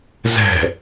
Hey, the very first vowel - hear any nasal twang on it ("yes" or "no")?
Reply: no